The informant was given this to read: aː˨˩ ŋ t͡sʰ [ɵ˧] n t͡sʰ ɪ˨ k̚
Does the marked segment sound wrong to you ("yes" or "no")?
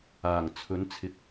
yes